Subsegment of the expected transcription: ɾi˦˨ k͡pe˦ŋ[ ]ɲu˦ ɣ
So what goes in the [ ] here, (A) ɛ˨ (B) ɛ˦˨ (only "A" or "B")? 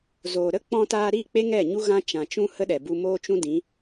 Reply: B